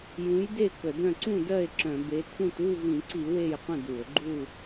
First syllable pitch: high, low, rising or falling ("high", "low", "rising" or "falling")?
rising